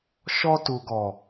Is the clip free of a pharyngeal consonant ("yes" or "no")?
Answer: yes